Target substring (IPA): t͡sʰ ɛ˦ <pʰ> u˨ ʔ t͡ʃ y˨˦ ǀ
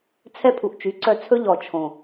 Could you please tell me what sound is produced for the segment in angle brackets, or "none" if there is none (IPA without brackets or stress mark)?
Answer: pʰ